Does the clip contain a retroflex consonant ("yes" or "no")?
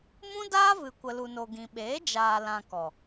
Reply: no